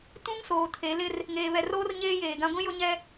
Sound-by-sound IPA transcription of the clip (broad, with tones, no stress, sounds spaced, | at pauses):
t ũ˦ ŋ s oː˨ tʰ e˨˦ l ɪ˦ r | ŋ eː˨ β ɛ˨ r oː˦ r ɲ eː˦ j eː˨ ɡ ã˦ ɡʷ ĩ˦ j ʊ˦ ɲ ɛ˦